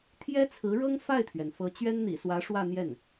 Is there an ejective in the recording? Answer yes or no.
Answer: no